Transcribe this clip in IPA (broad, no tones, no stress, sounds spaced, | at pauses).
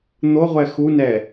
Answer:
n̪ o ʁʷ ɛ x u n ɛ